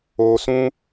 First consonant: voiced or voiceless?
voiceless